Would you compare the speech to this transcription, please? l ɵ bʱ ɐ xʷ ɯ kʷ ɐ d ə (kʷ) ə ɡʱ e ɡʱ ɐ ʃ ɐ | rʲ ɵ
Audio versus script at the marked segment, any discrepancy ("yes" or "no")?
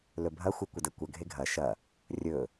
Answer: no